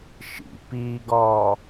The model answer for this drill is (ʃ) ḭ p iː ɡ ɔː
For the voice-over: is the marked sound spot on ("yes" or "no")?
yes